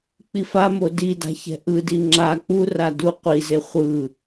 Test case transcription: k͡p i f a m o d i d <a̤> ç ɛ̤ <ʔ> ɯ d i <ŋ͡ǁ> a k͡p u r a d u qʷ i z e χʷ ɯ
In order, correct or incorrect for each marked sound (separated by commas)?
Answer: correct, correct, correct